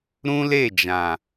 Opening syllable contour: high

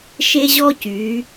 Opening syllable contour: high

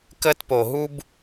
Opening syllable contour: high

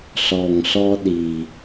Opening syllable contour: low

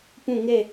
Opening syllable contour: falling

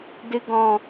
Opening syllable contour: low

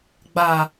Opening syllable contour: low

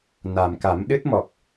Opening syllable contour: low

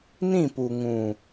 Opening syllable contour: falling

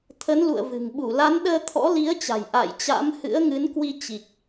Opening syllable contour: rising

